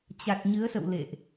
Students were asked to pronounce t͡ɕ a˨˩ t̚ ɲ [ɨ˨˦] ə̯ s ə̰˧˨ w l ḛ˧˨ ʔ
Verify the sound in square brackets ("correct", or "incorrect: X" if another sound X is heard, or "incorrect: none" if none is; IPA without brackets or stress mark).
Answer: correct